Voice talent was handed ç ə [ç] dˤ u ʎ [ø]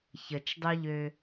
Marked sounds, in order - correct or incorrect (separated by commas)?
incorrect, correct